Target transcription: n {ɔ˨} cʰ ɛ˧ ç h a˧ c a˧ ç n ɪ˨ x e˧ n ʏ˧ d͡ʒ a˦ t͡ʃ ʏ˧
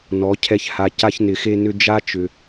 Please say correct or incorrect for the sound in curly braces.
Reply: incorrect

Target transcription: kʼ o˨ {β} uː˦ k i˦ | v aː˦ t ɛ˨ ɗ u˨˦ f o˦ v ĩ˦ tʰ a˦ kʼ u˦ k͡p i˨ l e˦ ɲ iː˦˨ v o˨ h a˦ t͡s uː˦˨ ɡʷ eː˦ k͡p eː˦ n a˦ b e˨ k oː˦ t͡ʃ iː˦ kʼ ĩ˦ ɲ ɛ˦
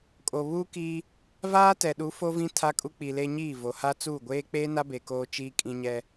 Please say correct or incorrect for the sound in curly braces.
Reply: correct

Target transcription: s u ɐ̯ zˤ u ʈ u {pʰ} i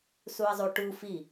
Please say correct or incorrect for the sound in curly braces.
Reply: incorrect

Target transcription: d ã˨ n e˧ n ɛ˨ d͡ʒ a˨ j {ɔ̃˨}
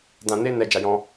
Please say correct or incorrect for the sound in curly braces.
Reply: incorrect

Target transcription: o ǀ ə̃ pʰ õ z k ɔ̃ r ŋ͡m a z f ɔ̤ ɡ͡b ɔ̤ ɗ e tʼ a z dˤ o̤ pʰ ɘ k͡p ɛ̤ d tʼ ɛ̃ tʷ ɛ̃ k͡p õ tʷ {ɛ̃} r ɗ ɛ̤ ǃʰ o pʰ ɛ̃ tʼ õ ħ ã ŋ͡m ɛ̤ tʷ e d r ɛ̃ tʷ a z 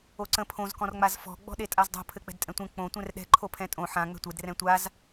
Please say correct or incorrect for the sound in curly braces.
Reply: correct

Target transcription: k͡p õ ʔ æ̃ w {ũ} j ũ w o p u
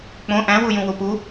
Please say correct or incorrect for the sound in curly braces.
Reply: incorrect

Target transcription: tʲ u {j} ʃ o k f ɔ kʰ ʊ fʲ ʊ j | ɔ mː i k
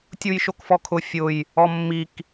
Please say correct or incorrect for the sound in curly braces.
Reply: correct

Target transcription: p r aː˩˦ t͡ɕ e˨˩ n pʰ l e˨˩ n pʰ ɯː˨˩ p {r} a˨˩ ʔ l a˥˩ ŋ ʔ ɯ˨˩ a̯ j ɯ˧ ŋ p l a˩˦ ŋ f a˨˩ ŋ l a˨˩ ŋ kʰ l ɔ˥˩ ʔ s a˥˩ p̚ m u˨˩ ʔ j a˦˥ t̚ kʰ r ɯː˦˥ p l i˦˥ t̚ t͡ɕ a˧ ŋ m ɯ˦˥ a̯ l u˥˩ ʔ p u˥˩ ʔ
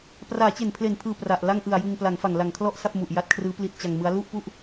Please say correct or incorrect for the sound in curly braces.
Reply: correct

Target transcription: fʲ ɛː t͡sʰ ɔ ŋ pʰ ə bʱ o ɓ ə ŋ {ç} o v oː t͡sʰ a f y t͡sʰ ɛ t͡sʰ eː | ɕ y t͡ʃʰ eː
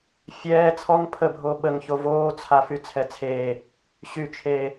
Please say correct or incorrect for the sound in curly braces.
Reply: correct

